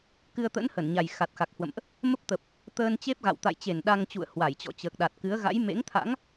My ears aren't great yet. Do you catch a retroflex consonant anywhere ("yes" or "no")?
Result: no